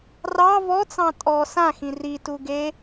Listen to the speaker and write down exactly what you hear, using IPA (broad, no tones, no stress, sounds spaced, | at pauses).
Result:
r ɑ v ɔ t͡s ɑ̃ tʼ ɔ s ã x ĩ r i t u ɡ e